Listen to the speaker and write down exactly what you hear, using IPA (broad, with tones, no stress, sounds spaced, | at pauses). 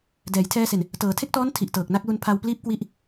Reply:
d ɛː˩˦ j tʰ ɛː˧ s e˨˩ n | t ɤː˩˦ tʰ e˥˩ k̚ t ɔː˦˥ n tʰ i˨˩ ʔ t ɤː˨˩ k̚ n a˥˩ k̚ l u˧ n pʰ a˧ w p l iː˥˩ p̚ k w i˦˥ ʔ